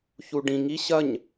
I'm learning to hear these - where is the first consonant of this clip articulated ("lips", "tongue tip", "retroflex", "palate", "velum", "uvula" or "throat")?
palate